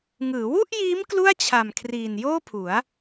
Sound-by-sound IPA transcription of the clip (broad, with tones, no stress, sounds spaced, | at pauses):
ŋ ɯː˩˦ w u˥˩ ʔ j iː˦˥ m k l u˥˩ a̯ t͡ɕʰ a˨˩ m kʰ r iː˨˩ n j oː˥˩ pʰ u˩˦ a̯